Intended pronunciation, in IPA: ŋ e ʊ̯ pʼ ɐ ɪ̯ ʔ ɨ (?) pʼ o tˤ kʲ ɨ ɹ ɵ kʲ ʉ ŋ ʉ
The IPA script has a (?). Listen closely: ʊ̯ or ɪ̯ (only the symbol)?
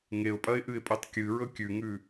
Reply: ɪ̯